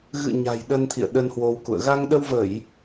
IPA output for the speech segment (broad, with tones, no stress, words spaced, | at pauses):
ɣɨ̰˧˨ ɲa̤˨˩jɗə˧n t̪ʰḭ˧˨ə̯ɗə˧nhwo˧wkṵ˧˨ə̯ ɣa˧ŋɗə˧wvə˧˩˨j